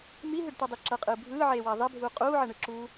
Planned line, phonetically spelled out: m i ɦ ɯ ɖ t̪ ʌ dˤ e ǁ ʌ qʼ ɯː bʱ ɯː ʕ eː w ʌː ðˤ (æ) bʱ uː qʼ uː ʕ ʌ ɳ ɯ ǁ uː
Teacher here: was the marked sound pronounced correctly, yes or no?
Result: no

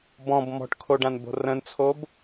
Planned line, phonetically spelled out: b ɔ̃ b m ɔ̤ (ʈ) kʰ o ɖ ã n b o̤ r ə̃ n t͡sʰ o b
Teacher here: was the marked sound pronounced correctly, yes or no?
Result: yes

